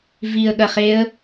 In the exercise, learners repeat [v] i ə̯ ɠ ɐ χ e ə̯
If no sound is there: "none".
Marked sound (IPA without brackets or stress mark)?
v